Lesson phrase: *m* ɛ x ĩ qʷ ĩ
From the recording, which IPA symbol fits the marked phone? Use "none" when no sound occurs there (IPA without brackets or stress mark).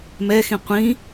m